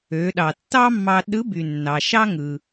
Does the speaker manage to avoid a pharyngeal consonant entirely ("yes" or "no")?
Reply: yes